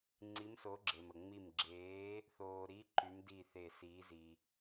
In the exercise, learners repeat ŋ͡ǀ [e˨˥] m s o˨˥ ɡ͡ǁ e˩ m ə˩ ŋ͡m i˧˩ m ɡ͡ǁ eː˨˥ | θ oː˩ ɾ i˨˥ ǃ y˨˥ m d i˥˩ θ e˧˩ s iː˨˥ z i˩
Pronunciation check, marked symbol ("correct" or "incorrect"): incorrect